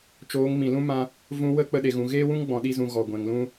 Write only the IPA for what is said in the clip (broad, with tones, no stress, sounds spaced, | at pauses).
t͡ʃ oː˨˦ ŋ m ĩ˨ l ũ˦ m ã˦ | v ũ˧ w ə˦ k͡p ə˧ ɗ e˨ ɣ ũ˨ ɣ eː˦ w ũ˦ ŋ ɡ͡b ɔ̃˨ ɗ i˧ z ũ˨ ɣ ɔ˨ ɡʷ ɛ̃˨ ŋ l ũ˦